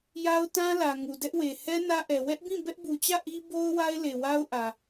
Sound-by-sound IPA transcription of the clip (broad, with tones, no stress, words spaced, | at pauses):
ja˦ʊ̯tã˦lä˨ ŋu˨dɛ˦ʔwe˨ hɛ˦ nä˦ʔɛ˨ wɛ˦ʔbĩ˦˨ bɛ˦ʔbu˨t͡ɕä˦˨ ʔi˦bo˦ʊ̯ wa˦ɪ̯le˨wa˦ʊ̯ʔä˨